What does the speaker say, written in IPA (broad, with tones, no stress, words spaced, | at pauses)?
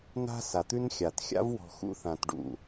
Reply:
na̤˦ sa˨t̪ʉ˦nxʲa˨t xʲa̰˦vwɔ̤˨ xṵ˦θã˨tɖṵ˦˨